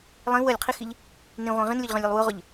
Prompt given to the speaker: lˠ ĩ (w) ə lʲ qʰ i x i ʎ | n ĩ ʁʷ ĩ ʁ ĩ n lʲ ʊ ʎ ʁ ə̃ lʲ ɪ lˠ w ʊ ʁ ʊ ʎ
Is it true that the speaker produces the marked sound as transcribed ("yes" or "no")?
yes